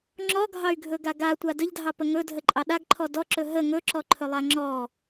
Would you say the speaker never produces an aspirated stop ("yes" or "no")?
no